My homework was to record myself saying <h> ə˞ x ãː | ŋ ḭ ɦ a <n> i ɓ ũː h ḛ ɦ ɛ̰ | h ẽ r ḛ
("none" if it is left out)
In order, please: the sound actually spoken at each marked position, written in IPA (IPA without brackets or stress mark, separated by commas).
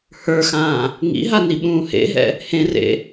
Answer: h, n